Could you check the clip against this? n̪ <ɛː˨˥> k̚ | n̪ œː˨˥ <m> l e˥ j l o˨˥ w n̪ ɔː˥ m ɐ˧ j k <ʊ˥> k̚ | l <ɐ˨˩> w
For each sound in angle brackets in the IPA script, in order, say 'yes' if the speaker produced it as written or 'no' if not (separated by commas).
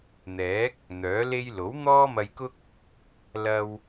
yes, no, yes, no